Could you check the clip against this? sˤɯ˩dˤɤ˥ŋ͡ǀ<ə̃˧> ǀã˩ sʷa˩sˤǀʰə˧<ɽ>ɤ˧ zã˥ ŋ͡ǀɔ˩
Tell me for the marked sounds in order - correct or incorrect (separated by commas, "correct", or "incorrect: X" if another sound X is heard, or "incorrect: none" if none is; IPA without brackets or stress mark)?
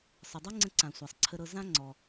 correct, incorrect: ɾ